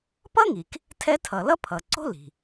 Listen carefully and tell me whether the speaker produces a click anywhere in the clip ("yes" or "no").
yes